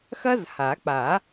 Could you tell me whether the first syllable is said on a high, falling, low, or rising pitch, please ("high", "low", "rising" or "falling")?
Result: high